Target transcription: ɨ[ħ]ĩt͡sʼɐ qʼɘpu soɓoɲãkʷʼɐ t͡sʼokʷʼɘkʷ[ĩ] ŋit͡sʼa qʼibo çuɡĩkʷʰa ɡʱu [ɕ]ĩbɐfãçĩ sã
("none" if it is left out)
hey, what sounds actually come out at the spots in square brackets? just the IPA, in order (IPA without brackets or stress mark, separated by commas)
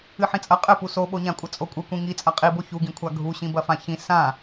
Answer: ħ, ĩ, ɕ